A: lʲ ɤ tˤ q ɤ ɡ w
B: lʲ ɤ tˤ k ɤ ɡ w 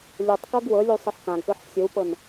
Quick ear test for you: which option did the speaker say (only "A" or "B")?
B